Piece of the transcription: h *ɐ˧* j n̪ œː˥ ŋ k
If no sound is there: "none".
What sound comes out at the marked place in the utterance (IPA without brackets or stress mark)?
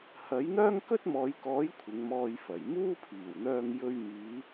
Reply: ɐ˨˥